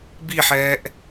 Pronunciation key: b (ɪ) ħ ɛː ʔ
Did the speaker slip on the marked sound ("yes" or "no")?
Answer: yes